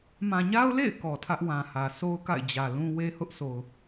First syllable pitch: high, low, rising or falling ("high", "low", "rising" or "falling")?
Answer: low